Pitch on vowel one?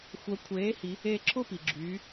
rising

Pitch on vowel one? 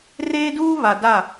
high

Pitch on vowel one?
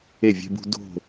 falling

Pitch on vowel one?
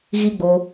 high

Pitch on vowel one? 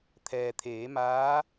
low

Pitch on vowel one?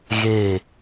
falling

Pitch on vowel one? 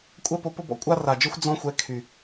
high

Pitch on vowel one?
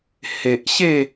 low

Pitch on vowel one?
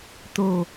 low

